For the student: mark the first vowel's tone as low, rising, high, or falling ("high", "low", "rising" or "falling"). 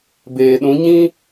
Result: low